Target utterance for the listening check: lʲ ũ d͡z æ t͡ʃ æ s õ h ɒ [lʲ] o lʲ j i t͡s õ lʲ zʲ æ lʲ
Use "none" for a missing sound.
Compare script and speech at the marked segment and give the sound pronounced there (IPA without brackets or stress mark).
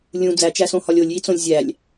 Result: lʲ